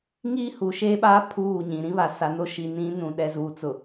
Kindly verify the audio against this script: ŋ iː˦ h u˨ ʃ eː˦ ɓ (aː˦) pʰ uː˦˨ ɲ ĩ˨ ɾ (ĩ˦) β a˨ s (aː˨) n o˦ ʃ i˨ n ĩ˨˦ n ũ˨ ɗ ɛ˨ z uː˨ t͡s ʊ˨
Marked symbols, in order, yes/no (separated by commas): yes, yes, no